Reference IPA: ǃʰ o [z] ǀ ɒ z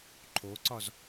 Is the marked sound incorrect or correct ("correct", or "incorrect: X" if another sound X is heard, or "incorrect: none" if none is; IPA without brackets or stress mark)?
incorrect: none